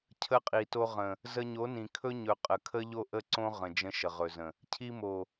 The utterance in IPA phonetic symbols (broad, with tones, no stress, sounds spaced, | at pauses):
cʰ ə˧ qʼ i˨ t o˧ ʁ ə̃˨ | z ə˧ ɲ o˨˦ n ĩ˨ kʰ ɵ˦ ɲ ɵ˨ qʼ ə˨ kʰ ə˦ ʎ o˦ ʔ ə˦ ǀ õ˦ ʁ ə̃˨ d͡ʒ ə̃˧ ʃ ə˨ ʁ ɵ˨ z ə̃˨ | cʰ i˧ m o˨